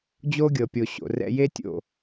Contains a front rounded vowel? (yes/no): no